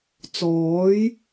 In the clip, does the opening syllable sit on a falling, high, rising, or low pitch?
rising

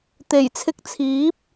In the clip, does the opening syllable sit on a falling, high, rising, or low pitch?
low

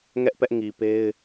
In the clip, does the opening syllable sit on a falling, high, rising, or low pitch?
high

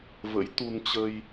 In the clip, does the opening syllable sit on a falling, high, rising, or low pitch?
rising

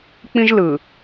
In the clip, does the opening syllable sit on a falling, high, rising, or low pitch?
high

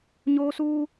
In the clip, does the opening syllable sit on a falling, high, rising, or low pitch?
high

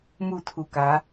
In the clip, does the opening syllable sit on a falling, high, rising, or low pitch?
falling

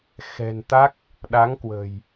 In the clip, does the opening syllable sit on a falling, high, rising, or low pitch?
low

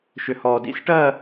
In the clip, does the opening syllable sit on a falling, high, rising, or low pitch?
low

